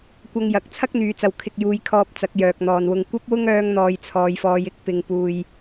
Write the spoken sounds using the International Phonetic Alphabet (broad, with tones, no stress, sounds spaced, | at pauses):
kʷ ɐ˧ ŋ j ɐ˨ k̚ t͡sʰ ɐ˥ k̚ n̪ yː˨ t͡s ɐ˨ w kʰ ɪ˧ k̚ j uː˧ j kʰ ɔː˧ p̚ t͡s ɐ˨˥ k̚ j œː˨ k̚ n̪ ɔː˨ n w ʊ˧ ŋ kʷ ɐ˥ p̚ w ʊ˥ ŋ œː˧ ŋ n̪ ɔː˨ j t͡sʰ ɔː˨ j f ɔː˨˧ j ɪ˧ k̚ p ɪ˨ ŋ p uː˨ j